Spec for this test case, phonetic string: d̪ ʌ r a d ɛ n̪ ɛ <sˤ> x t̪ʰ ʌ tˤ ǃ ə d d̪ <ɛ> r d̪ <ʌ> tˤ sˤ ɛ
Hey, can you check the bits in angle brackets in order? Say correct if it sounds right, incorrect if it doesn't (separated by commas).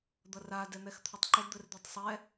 incorrect, incorrect, incorrect